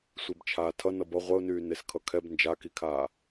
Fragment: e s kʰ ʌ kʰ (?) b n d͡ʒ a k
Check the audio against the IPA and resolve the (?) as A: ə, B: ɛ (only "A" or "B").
B